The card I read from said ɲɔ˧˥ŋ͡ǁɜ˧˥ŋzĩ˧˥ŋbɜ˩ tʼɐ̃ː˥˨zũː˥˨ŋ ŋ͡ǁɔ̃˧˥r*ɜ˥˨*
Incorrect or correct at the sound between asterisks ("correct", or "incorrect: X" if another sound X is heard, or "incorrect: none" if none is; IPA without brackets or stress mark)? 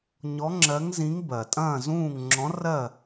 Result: correct